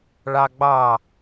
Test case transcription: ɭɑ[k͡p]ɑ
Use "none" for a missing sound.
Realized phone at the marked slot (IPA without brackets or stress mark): ɡ͡b